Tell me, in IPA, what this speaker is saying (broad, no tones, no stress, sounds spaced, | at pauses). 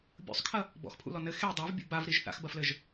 bʲ ṵ sˤ kʰ ɐ | b ɔ̰ x pʰ ṵ l ɔ n ɘ x e dˤ a v bʲ ṵ b a v ɾ i ʒ θ a̰ x b ɐ f l ɘ ʒ